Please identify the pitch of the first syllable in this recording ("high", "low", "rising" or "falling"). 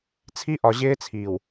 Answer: high